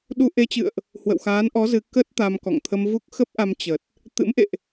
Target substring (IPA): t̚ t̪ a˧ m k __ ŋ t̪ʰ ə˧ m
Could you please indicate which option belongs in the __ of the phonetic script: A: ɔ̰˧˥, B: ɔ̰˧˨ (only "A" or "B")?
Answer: B